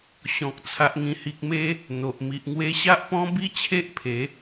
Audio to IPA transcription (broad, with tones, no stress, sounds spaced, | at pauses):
ɕ ɔ̃˨ k̚ t͡sʰ a˨ ʔ ŋ ĩ˨˩ h i˨ k̚ m e˧ | n̪ o˨ ʔ m i˨ ʔ ŋ w e˧ ɕ a˦ ʔ p ɔ̃˦ b i˦ t͡ɕʰ e˦ ʔ pʰ e˨˦